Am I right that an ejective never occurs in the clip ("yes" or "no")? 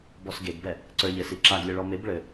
yes